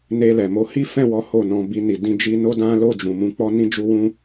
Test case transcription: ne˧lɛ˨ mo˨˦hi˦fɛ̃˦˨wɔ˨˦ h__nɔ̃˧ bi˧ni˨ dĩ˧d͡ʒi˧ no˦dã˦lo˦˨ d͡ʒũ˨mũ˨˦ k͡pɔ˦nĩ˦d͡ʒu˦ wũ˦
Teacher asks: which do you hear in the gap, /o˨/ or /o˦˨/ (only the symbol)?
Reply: o˦˨